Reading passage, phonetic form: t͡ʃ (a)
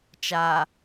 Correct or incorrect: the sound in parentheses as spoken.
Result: correct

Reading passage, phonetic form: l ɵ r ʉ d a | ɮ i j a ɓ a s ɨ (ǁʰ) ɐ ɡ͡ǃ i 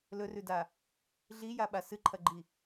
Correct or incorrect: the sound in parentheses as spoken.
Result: incorrect: ǃʰ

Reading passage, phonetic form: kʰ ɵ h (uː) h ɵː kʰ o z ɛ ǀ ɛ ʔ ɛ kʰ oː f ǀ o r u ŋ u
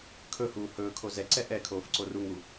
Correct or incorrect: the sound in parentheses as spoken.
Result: correct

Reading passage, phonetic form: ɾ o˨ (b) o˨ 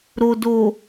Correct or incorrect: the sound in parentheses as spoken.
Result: incorrect: d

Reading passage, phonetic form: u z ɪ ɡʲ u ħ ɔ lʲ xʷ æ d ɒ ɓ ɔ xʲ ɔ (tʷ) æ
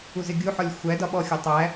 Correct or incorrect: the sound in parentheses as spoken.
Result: incorrect: tˤ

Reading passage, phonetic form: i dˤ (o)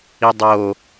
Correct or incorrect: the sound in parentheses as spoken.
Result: correct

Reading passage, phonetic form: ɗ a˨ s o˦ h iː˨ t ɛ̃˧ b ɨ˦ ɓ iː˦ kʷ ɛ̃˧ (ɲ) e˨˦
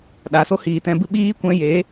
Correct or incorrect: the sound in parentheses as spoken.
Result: incorrect: j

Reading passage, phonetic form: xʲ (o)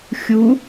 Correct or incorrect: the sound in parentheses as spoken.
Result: incorrect: u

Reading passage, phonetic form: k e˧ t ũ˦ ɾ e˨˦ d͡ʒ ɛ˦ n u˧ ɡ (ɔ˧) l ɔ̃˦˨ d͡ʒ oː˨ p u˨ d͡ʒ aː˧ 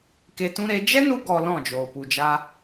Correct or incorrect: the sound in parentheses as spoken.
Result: correct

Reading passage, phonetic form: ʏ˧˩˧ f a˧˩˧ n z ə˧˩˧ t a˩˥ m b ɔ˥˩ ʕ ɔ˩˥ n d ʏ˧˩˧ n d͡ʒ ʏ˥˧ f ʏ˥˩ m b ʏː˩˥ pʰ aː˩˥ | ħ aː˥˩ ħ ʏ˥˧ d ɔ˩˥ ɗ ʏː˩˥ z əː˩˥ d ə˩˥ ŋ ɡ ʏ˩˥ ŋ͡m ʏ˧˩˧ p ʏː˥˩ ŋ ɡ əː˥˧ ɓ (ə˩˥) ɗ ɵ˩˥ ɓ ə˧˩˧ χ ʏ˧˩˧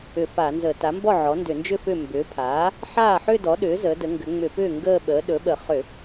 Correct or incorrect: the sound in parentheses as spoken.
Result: incorrect: əː˩˥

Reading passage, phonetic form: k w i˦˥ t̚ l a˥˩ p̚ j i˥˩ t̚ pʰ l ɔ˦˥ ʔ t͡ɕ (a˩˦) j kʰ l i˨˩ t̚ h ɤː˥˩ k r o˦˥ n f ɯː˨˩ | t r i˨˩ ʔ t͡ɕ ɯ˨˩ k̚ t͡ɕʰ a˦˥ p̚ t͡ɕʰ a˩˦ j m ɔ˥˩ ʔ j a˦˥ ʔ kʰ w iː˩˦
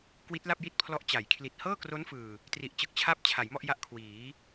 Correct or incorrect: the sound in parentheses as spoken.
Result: correct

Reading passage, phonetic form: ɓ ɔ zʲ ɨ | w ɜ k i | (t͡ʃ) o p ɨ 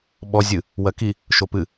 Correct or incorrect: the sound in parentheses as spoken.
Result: incorrect: ʃ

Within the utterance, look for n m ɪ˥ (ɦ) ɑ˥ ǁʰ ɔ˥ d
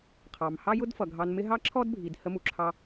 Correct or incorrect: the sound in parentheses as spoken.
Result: correct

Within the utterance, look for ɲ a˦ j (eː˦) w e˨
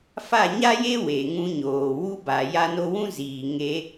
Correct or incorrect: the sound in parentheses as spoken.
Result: incorrect: e˦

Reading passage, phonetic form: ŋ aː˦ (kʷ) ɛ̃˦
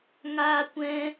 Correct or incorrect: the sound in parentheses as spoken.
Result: correct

